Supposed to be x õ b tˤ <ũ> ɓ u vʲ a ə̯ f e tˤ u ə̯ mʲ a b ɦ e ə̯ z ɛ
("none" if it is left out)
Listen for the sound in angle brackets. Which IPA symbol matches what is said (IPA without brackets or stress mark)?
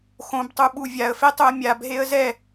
u